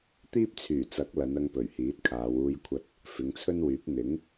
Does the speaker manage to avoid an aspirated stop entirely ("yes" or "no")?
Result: no